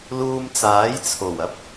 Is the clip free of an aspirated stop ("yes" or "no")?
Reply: no